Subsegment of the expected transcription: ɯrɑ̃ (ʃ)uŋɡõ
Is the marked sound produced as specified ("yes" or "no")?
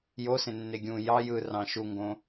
yes